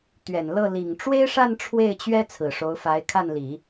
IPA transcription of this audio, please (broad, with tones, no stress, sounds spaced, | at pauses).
t̪ ɥ ɛ˨˩ n l ɤ˥˩ l i˨˩ ŋ ʈ͡ʂ w e˥ ɪ̯ ʂ a˥˧ n ʈ͡ʂʰ w e˥˩ ɪ̯ t͡ɕ ɥ ɛ˥ t͡sʰ ɹ̩˨˩ ʂ o˧˥ ʊ̯ f a˧˥ ɪ̯ kʰ a˥˩ n l i˨˩˦